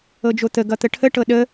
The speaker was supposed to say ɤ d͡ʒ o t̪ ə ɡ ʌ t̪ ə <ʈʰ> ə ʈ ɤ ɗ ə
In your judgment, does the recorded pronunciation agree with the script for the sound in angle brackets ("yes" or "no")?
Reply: yes